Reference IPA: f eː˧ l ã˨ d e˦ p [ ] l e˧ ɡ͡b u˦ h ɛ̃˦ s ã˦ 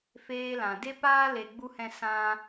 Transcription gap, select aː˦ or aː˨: aː˦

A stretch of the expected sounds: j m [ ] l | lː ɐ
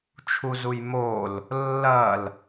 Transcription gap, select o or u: o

